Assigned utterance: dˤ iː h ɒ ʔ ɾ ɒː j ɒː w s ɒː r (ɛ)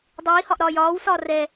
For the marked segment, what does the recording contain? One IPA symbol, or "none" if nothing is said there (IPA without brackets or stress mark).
ɛ